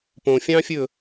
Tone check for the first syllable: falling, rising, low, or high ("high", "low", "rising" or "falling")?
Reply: low